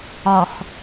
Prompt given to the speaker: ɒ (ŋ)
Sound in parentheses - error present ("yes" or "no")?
yes